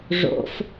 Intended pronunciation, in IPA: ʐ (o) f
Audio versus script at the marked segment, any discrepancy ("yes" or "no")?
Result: yes